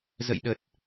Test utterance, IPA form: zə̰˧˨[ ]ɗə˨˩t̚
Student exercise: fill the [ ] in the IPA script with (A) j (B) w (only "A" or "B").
A